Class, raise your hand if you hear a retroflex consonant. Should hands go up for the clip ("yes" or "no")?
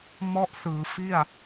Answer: no